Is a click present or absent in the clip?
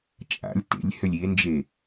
absent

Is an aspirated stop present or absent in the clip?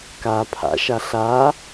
present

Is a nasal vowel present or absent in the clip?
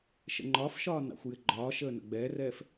absent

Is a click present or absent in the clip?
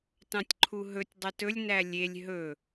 present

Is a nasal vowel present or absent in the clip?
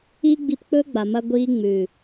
absent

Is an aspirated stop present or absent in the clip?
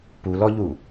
absent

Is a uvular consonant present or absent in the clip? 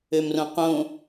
present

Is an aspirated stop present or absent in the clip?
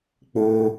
absent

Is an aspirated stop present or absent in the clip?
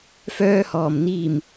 absent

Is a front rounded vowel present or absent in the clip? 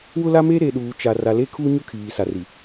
absent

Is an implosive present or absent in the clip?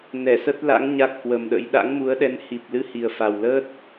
present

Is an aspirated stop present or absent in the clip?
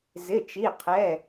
present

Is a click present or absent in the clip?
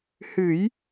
absent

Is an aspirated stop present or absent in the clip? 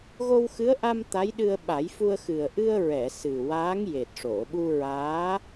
absent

